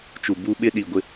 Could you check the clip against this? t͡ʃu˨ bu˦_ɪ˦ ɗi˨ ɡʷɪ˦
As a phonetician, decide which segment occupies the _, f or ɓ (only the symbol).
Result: ɓ